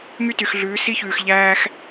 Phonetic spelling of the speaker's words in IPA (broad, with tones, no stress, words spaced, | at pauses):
ŋy˦ty˨xɮʉː˨˦ si˦çʉː˨xʎæː˦x